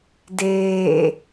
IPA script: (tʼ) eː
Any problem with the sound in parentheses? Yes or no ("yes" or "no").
yes